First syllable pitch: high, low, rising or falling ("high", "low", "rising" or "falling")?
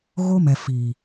high